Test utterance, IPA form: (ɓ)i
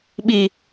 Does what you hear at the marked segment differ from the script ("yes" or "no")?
no